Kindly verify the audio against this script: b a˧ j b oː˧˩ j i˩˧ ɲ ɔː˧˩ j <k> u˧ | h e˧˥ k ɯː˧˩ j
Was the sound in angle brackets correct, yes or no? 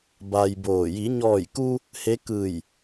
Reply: yes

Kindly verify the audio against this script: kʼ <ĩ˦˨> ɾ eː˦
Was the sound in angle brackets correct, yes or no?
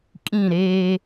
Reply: yes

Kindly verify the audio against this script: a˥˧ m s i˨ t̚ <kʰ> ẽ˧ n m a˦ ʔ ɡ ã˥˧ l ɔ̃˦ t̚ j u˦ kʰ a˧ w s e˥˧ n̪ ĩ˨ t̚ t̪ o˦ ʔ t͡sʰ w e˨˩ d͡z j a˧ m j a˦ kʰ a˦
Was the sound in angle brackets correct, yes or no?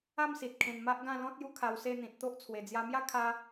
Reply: yes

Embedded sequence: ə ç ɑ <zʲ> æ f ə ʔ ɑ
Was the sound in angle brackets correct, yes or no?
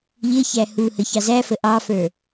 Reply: no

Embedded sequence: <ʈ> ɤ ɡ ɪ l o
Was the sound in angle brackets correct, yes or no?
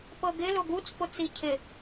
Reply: no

